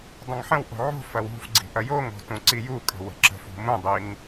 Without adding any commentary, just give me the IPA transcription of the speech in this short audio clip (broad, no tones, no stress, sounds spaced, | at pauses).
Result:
dˤ ə̃ ŋ ħ ə̃ w ʔ o̤ ʕ o̤ f ɐ w ṳ f ɡ͡ǀ i̤ ʔ ɐ j o ŋ o̤ t ũ ǀ i j u kʼ ə̤ w ə̤ ǁ ə̤ f ṳ m ũ dˤ i ŋ